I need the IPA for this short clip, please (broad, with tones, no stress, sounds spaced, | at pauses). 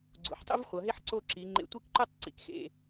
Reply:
ɡ͡ǀ ṵ˩˧ ħ tˤ ṵ˥ v χʷ ʌ˩˧ ɦ e˥ ħ ǀ o˥˧ ǁ i˩˧ ŋ͡ǃ ḛ˧˩ tʷ i˥˧ k ǃ u˥˧ tˤ ǀ ḭ˩˧ k x ḛ˧˩